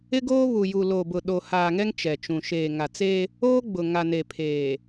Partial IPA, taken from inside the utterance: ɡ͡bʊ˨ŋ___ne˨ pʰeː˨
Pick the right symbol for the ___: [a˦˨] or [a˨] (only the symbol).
a˨